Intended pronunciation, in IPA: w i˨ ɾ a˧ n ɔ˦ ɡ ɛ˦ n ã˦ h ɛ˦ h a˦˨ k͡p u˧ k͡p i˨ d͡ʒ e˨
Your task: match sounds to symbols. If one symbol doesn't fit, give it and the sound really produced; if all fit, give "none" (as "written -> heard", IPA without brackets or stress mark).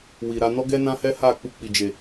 none